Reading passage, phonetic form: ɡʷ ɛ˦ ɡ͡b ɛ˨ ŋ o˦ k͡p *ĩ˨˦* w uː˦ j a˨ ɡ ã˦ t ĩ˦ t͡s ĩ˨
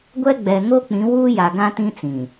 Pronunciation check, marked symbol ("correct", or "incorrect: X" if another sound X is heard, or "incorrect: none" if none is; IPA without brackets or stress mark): correct